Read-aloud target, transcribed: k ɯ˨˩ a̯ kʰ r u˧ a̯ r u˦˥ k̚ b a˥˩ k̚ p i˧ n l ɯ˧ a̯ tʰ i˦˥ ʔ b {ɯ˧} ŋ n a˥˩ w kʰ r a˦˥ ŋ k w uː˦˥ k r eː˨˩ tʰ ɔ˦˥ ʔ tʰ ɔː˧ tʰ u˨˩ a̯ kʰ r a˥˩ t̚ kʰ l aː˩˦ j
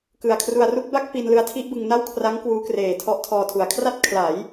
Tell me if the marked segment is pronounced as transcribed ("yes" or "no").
yes